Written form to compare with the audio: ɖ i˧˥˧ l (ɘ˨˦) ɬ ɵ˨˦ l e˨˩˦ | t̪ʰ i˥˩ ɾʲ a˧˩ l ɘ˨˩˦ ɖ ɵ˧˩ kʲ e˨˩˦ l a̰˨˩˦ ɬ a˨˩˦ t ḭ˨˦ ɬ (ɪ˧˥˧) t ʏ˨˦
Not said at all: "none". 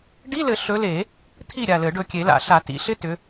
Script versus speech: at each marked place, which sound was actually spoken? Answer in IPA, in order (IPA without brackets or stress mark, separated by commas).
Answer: ɘ˨˩˦, ɪ˧˥˧